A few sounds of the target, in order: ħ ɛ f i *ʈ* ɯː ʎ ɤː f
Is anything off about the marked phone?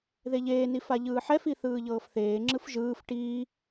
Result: yes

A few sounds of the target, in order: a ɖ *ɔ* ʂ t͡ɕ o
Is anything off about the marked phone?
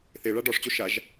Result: no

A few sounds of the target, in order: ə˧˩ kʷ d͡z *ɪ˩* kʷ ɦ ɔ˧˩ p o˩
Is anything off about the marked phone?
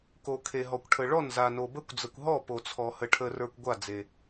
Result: yes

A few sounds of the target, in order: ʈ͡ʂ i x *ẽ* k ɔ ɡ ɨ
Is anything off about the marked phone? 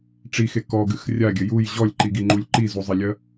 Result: yes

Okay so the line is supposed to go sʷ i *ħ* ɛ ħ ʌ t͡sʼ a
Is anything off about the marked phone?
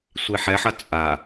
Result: no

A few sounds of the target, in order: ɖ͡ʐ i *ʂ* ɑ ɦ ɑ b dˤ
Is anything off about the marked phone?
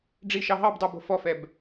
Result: yes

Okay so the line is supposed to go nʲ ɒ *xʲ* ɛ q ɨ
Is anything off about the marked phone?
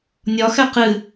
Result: yes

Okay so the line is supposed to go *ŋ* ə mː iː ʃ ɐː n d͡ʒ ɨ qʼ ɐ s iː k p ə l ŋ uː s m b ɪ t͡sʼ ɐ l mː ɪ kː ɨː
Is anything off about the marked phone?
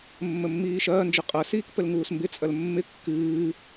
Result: yes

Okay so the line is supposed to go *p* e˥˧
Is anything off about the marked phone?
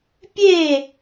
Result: yes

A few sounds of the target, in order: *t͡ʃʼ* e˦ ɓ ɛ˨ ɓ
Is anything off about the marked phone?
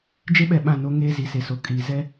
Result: yes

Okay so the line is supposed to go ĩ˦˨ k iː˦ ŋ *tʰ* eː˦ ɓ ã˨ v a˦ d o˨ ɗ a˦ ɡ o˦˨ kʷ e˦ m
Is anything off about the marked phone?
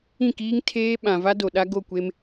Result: no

